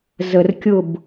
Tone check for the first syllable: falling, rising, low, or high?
low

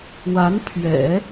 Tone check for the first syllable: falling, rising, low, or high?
rising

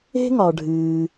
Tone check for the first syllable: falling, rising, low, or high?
high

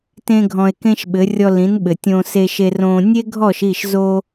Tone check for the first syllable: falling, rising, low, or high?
high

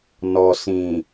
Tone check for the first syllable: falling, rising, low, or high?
low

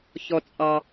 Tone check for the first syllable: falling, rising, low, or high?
high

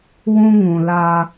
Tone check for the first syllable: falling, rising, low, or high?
high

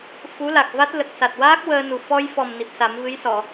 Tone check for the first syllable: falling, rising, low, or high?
rising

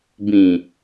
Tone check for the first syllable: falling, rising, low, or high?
low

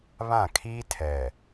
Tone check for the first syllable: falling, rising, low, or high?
falling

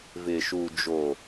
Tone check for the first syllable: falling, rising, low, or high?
low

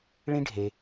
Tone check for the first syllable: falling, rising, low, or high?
high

